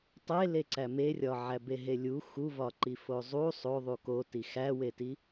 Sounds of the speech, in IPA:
tˤeleǀæ merʲɒʕæbe ɦelʲu xuvɒǃi fozˤu sˤo ðˤukoti xæweti

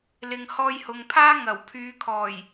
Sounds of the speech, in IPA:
lɪ˨ŋhɔː˧jhʊ˨ŋpʰaː˥ ŋɐ˨˩w pʰyː˨˧kʰɔː˨˩j

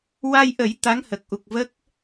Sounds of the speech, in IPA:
wa˧jʔə˨˩˦j t̪a˧˥ŋhə˨˩k̚ʔu˨˩k̚ və˦˥k̚

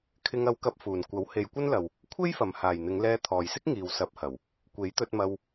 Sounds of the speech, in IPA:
kʰɪ˧ŋɐ˧wkɐ˧p̚ fuː˨˩nkʷɐ˨˥w he˨˧jkʷɐ˥nlɐ˨w | kʷʰe˥jfɐ˨˩mhaː˨˩j n̪ɪ˨˧ŋlɛː˧t̪ʰɔː˨jsɪ˥k̚ ŋiː˨w sɐ˨˥p̚hɐ˨˩w | kʷe˨˥jt̪ɵ˧t̚mɐ˧w

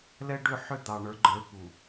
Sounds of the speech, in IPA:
lɛ˦ɖʏ˦˨ ħʏ˦d̪ɑ˨ ɳə˞˨˦ɡ͡ǃə˞˨˦pu˨

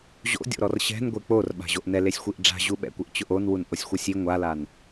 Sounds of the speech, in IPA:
ʑo̰dʲo̰ɾɔr ɕɛ̤n ɡʷek͡porɓa̤ ʑoʔnɛlesʲxʷiʔ ɖ͡ʐa̤ʑuɓɛ̰kʷɪʔ t͡ɕʊʔonwun ʔosʲxʷɛsʲi ŋʷalan

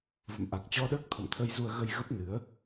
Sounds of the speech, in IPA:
və̰˧˨mʔa˨˩k̚t͡ɕɔ˧ɗəː˦˥k̚ t̪ʰɔ̰˧˨mt̪ʰə˧jzu˧ə̯ɣə˧j ɣə˦˥p̚nɨ˨˦ə̯

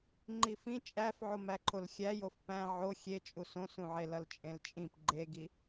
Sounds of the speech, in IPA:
ŋ͡ǃifĩ t͡ʃʼæf ʕomæǃʰolxʲæj ofpæ̃ ʕo xʲet͡ʃʼus õsũʕelʌl t͡ʃʼẽlt͡ʃʼĩp ɡ͡ǃeɡi

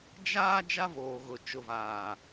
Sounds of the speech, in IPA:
d͡ʒaː˦ d͡ʒa˦voː˨ɣʊ˨ t͡ʃʊ˨vaː˨

